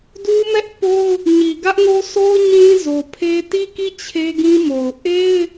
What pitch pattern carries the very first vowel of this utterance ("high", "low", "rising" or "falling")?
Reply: high